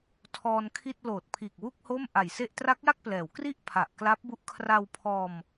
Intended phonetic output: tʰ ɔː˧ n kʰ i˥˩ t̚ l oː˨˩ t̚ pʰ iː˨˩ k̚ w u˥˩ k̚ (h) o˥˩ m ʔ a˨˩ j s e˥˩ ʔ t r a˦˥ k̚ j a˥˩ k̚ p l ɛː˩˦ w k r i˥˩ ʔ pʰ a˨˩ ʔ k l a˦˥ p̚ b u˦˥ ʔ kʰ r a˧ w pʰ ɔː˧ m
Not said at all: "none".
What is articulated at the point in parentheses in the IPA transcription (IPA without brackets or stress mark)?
h